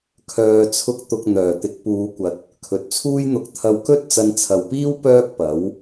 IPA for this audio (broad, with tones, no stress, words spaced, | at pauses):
kʰœː˨t͡sʰʊ˧k̚t̪ʊ˨k̚ n̪œː˨˩t̪ɪ˨˥k̚puː˨˧kʷɐ˨t̚ | kʰɵ˨t̚t͡sʰuː˥jn̪ʊ˧k̚ t̪ʰɐ˧wkɵ˥t̚ t͡sɐ˧nt͡sʰɐ˨wpiː˥w pœː˥k̚pɐ˨˥w